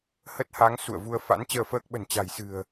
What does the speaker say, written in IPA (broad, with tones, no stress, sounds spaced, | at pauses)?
h ə˦˥ t̚ h a˨˦ ŋ s ṵ˧˨ ə̯ v u˧ ə̯ f a̰˧˥ n t͡ɕ əː˧ f əː˦˥ k̚ ɓ ə̤˨˩ n t͡ɕ a̤˨˩ j s ɨ̤˨˩ ə̯